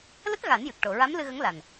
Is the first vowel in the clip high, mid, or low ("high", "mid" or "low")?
mid